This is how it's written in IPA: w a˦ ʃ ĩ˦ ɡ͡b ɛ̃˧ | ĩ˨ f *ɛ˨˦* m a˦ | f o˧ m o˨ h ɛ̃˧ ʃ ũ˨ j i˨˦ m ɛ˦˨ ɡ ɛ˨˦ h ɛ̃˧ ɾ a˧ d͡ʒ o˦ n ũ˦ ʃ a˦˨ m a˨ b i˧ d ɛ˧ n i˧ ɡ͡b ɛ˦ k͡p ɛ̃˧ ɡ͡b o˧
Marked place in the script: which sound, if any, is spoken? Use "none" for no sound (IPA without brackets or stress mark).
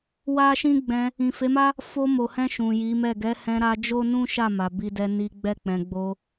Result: e˨˦